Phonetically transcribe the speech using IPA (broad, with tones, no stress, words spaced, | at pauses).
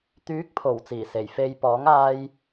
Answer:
t̪yː˨˥k̚pʰo˨˩w t͡siː˨˩se˨˩j fe˨j pɔː˨˥ŋaː˧j